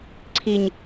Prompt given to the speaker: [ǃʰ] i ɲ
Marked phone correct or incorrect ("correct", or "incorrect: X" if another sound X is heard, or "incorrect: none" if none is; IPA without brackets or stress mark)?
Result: incorrect: ǀʰ